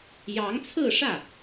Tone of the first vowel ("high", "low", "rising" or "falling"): rising